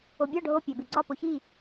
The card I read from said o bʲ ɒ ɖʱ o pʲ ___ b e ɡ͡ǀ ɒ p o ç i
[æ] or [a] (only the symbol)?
æ